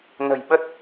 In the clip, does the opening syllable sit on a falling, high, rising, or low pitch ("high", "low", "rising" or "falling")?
low